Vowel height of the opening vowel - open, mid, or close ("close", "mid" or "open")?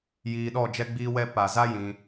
close